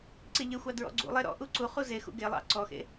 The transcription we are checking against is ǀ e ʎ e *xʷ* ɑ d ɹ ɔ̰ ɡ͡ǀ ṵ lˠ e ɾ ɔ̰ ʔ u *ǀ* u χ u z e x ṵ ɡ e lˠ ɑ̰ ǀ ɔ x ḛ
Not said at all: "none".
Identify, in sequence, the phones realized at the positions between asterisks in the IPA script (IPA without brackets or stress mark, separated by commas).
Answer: xʷ, ǀ